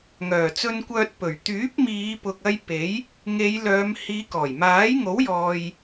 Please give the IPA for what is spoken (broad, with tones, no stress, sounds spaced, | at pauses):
ŋ œː˨˩ t͡s ɵ˧ n kʷ œː˧ t̚ p ɵ˨˩ ɥ t̪ yː˨˥ p̚ m iː˨˧ p ʊ˨ k̚ ɐ˧ j p e˨˥ j | ŋ e˨˧ j l œː˨˧ m h iː˨˧ k ɔː˨˩ j m aː˨˥ j ŋ o˨˥ w j ɔː˨ j